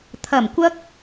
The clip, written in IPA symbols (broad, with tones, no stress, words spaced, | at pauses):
t̪ʰɐ˨˩mkʷɐ˧k̚